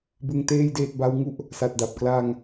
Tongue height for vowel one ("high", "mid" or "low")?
high